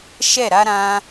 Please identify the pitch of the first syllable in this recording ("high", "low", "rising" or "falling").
falling